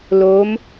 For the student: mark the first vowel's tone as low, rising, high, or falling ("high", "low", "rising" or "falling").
rising